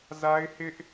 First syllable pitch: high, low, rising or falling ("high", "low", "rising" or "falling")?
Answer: high